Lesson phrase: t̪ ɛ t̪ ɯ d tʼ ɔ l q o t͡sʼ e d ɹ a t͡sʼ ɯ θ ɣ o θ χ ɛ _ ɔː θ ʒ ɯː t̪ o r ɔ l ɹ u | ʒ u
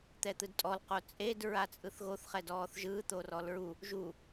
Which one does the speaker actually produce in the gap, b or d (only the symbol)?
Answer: d